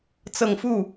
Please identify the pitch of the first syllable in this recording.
low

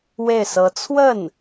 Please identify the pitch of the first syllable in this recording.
falling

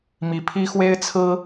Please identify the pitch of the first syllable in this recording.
high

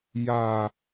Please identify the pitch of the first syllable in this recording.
low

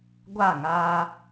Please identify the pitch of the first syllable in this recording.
falling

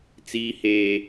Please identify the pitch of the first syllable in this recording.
high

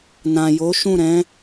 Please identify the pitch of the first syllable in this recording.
low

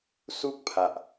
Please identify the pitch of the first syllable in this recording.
high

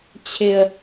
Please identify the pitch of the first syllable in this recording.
low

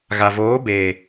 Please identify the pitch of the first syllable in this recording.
low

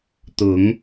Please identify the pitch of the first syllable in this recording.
rising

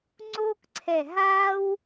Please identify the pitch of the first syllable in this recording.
high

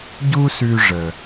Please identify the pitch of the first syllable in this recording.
high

